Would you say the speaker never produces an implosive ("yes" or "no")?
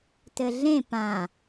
yes